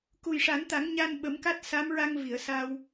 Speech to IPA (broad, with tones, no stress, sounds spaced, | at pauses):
k u˨˩ j ʂ a˨˩˦ n t̪ a˨˩˦ ŋ ɲ a˧ n ɓ ə˨˩˦ m k a˦˥ t̚ s a˧˥ m ɹ a˧ ŋ v i˨˩˨ ə̯ s a˧ w